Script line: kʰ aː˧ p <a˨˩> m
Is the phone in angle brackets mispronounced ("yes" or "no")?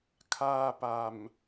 no